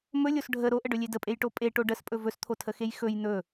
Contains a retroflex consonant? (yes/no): yes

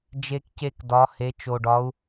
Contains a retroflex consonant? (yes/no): yes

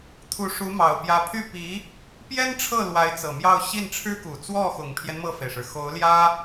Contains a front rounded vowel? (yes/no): yes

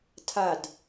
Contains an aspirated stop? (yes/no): yes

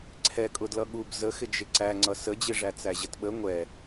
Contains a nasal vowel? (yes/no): no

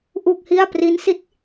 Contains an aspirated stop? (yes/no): no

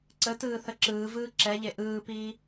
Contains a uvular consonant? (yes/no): no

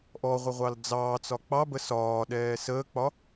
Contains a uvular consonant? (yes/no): yes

